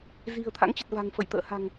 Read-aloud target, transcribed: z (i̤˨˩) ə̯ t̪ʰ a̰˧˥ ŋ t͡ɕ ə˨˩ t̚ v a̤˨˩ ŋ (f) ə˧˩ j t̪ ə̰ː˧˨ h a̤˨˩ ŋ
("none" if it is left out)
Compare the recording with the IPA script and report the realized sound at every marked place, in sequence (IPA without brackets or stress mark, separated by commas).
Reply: i̤˨˩, f